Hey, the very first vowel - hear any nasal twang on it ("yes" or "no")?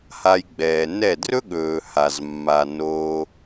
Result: no